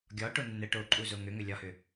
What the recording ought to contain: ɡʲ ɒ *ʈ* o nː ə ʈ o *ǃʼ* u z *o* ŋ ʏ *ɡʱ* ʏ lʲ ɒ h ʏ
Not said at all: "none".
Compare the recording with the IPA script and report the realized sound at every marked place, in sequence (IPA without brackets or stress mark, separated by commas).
ʈ, ǃʼ, o, ŋ